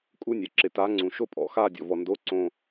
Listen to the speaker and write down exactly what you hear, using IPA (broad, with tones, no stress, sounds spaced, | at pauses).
kʼ u˧˥˧ nʲ ɛ˩ ǁ ɪ˩ t a˩˥ ŋ͡ǀ ũ˩ ʃ o˦˨ pʼ ɔ̰˩˥ x a˦˨ dʲ ɔ̰˩ v ɔ˩ n d o˧˥˧ ǀ õ˦˨